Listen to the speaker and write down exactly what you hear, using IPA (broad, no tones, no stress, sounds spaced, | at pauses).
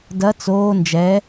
d ɐ t͡s oː n d͡ʒ ɛ